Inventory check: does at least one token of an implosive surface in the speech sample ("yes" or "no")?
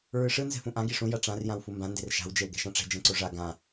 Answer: no